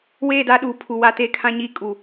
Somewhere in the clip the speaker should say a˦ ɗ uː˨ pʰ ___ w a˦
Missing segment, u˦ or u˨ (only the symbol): u˨